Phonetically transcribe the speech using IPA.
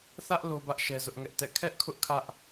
θ ä˦ ʔ l o˦ b ä˦ ʔ ʃ ɛ˦ z ʊ˦ ʔ ŋ ɛ˦ ʔ t ɛ̰˦˨ kʰ ɛ˦ ʔ kʰ ʊ˦ ʔ kʰ ä˦ ʔ

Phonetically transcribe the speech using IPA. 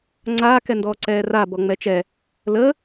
ŋ͡ǀ aː k ɛ n d ɔː ǀ ɛː r a b ɔ ŋ͡m ɛ t͡ʃ ɛ | l ə

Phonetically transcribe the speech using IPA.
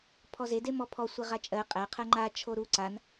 pʰ ɔ z e d e m ɔ pʰ ɔ sʷ i ʁ a t͡ʃʼ ɜ qʼ æ qʰ ɜ ŋ͡ǃ a t͡ʃʰ o ɾ u ǀ a n

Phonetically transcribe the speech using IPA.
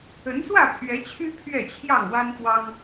ə˨˦ n s w ä˥˨ pʰ ɥ ɛ˨˦ t͡ɕʰ y˦ pʰ ɥ ɛ˥˨ t͡ɕʰ j ɑ˥˨ ŋ w a˦ n p w ɑ˦ ŋ

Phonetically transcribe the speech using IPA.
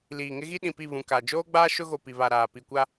l iː˨ ŋ ɪ˦ ɣ i˦ ɗ ĩ˨ p i˦˨ β ũ˨ k a˨ d͡ʒ oː˦ ɡ͡b aː˦ ʃ ʊ˦ ɣ o˨ p i˨ β a˨ ɾ aː˨ p i˨ kʷ a˦

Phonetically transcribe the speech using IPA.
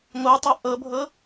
ŋʷ ɤ tˤ o ʔ ɤ bʱ ɤ

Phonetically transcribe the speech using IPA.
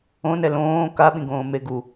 õ n ɛ l õː k a ɓ ĩ ɡ õː m e ɡ u

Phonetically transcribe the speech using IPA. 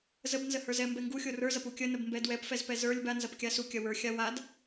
z ə b n z ə h ə˞ z ɛ m b ɛ ŋ ɡ u xʲ o r ə˞ z ɐ p u kʲ ə n ə b m b ɛ d w ɛ p f ɛ z p ɛ z ə˞ lʲ b a n z ɐ p kʲ a s u kʲ ɐ w ə˞ xʲ a w a d

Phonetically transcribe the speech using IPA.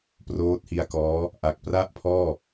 p r oː˦˥ t̚ h i˧ a̯ k ɔː˦˥ | ʔ a˨˩ k̚ p r a˥˩ ʔ pʰ ɔː˥˩

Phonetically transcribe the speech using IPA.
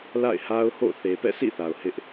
l a̰˦˨ ɪ̯ h a˦ ʊ̯ h o̰˦˨ θ e˨ p ɛ̰˦˨ sʰ ḭ˦˨ θ a˨ ʊ̯ h ɪ˦ ʔ

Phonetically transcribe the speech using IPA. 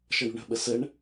ʃ ʌ ɳ ṳ ɳ ə̤ ɓ ə s ə ɳ

